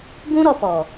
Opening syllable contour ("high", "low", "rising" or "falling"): high